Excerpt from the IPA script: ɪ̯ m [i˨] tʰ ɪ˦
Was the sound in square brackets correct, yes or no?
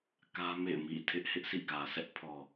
no